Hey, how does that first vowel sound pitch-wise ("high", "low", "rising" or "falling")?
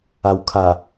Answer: low